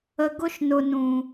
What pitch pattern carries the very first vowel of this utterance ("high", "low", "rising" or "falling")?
low